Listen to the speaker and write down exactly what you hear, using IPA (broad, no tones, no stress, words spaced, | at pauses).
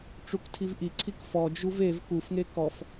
ʈ͡ʂuktʰivʔiǀʰik fɔd͡ʒuv ev kufŋe kɔf